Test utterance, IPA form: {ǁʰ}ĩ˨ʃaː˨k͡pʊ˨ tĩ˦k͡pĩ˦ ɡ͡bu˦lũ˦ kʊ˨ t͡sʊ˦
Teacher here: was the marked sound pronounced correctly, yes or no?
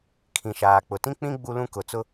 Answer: no